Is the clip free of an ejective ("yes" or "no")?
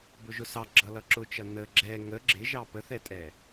no